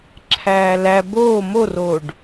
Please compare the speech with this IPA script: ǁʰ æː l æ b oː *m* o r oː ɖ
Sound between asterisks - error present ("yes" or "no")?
no